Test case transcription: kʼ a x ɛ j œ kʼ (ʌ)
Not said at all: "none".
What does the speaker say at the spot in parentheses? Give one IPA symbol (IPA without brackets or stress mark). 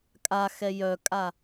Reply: a